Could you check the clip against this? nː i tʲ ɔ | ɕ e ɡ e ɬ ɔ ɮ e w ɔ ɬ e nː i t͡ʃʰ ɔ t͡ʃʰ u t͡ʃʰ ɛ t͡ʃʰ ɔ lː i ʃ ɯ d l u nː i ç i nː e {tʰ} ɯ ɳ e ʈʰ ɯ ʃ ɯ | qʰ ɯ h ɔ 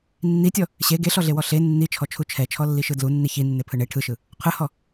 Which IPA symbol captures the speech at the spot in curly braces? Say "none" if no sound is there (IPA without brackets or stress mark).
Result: pʰ